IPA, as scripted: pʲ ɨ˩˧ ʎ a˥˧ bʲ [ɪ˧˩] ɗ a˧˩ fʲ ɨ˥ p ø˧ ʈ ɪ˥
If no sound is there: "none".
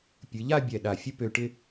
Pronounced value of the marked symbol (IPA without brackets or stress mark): ɛ˧˩